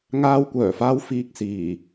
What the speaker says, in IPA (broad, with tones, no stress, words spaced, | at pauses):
ŋaː˧wkʷœː˨˩faː˧w fiː˨k̚ siː˨˩